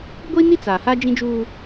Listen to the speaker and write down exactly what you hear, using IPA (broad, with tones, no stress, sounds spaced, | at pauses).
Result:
ɡʷ i˦ n i˦ t͡s aː˨ h a˦ d͡ʒ ĩ˦ d͡ʒ uː˦